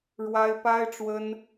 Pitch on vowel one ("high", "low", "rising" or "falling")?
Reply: high